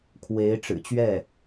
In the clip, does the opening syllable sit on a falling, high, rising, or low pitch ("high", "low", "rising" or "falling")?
rising